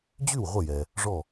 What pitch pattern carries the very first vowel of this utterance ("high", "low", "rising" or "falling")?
falling